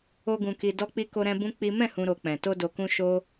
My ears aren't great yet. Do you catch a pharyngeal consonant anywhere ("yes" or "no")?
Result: no